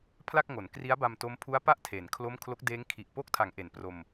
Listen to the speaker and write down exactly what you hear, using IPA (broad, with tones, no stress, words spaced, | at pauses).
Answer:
pʰla˥˩k̚ŋo˩˦n kri˦˥a̯ba˧mto˦˥mpʰu˦˥a̯ pa˥˩ʔtʰe˩˦n kʰlo˥˩m kʰlo˦˥k̚deː˦˥ŋ kʰi˨˩ʔ po˦˥k̚tʰa˩˦ŋ ʔe˩˦npro˧m